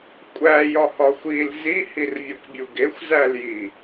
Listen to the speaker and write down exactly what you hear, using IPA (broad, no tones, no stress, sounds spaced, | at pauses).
kʷʼ æ j ɒ h ɒ xʷ i l z i h i r vʲ o k bʲ u ɡ e xʷ z æ l j i